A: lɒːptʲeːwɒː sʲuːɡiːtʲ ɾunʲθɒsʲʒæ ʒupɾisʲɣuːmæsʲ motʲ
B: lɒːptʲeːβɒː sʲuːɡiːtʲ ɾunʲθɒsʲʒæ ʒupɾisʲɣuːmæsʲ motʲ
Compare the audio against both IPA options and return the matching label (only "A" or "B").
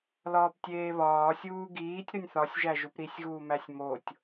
B